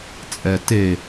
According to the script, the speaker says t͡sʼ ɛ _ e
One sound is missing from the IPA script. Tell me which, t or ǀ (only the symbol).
t